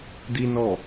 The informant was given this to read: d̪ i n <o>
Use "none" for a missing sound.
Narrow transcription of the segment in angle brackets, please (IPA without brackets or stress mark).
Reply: ɔ